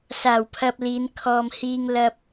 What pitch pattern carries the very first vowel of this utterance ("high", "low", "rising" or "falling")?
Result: low